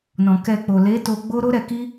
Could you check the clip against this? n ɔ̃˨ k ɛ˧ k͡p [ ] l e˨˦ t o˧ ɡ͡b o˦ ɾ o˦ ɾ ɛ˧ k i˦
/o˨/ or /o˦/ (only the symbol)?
o˨